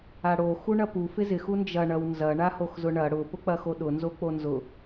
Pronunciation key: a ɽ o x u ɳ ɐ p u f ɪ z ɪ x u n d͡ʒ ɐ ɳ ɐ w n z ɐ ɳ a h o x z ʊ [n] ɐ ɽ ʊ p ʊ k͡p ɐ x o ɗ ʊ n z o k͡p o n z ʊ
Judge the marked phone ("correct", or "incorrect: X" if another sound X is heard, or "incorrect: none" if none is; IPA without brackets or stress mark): incorrect: ɳ